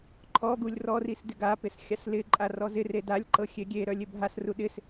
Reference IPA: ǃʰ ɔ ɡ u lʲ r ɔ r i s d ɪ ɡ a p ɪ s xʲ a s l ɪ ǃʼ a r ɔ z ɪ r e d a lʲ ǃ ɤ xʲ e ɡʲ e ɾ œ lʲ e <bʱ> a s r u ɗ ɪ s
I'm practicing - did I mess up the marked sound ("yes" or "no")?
no